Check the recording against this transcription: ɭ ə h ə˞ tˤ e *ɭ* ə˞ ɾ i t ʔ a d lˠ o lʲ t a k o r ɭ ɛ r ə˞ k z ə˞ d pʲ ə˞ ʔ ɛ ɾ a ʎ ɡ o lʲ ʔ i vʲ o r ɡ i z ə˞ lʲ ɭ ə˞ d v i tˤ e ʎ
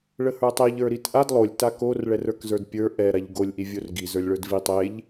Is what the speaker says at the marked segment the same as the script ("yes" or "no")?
no